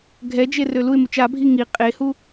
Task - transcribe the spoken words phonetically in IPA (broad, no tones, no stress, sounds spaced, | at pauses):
ɡʱ ɛ d͡ʒ e r ø l u ɪ̯ m u t͡ʃ a bʱ i ŋ i qʼ e h u